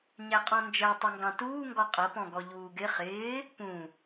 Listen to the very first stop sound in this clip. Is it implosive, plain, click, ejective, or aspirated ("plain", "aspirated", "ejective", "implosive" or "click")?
ejective